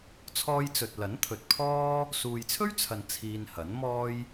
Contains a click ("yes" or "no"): no